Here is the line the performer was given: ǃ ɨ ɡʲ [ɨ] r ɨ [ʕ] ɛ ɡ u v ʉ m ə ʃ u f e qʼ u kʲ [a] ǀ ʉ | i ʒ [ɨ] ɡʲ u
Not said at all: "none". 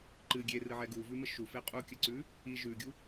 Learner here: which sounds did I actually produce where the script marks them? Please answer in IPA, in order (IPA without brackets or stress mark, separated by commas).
e, ʕ, ə, ʉ